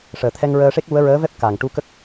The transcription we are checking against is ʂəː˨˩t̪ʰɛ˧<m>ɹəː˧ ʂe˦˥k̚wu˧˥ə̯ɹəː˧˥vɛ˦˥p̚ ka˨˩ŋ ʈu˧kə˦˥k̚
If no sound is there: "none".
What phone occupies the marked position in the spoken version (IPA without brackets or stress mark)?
ŋ